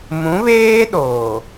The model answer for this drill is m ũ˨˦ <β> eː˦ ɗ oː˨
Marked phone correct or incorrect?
correct